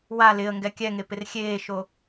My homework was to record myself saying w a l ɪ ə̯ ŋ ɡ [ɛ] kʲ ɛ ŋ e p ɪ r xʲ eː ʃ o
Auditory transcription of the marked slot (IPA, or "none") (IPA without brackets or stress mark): ɛ